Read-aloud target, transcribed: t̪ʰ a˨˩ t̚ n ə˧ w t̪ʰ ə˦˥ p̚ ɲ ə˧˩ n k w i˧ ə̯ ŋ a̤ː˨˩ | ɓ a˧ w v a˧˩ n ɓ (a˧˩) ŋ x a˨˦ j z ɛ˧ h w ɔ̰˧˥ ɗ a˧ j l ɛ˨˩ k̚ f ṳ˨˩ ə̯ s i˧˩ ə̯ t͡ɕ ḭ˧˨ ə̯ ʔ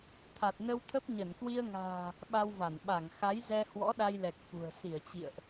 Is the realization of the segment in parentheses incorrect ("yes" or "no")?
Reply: no